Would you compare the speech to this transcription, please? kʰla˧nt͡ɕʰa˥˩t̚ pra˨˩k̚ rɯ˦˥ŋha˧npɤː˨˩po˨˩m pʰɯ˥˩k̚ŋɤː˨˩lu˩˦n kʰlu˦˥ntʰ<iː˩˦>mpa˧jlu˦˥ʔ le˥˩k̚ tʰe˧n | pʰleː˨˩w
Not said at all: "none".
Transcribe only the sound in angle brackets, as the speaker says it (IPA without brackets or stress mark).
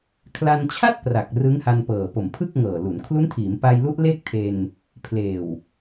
iː˩˦